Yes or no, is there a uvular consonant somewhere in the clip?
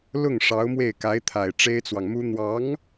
no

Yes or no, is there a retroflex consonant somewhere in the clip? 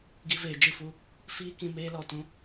no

